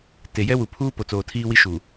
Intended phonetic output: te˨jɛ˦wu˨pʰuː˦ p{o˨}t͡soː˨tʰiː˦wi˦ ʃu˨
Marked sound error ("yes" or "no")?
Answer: no